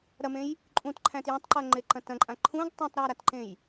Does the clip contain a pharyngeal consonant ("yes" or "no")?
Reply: no